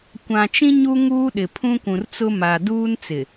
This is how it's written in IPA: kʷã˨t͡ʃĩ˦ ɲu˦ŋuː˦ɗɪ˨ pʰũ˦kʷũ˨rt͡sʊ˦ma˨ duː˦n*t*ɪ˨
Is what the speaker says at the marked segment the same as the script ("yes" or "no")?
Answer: no